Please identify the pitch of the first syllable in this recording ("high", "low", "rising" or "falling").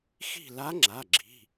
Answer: falling